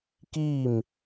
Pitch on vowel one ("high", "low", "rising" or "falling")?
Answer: falling